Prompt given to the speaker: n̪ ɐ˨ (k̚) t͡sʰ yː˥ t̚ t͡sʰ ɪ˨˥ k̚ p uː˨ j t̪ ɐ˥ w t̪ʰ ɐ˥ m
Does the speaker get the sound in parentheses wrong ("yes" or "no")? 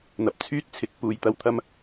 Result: yes